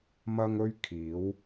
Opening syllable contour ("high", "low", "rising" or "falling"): high